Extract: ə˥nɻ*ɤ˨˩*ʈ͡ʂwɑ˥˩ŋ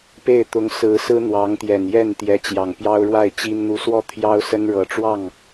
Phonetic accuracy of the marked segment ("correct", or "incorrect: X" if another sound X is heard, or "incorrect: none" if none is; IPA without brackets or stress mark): correct